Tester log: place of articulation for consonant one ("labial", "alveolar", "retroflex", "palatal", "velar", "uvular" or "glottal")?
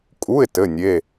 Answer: velar